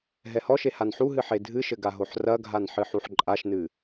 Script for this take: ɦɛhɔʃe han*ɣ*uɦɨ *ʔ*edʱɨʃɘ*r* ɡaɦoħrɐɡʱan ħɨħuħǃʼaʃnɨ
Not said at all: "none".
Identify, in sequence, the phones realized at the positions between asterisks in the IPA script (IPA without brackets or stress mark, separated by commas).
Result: ħ, ħ, none